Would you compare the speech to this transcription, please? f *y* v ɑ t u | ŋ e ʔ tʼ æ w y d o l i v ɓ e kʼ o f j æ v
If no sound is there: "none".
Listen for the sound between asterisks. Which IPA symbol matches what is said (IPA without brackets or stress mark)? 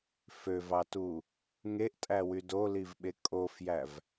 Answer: ø